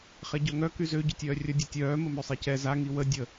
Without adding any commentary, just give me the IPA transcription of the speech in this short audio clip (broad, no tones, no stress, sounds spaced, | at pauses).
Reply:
χ ɛ ɟ œ ŋ œ k y z ø ɟ ø tʲ œː rʲ ə dʲ ø tʲ œː m ə m ø sˤ e c ɛ z a ŋ i w ə dʲ ə